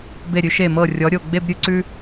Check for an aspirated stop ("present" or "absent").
absent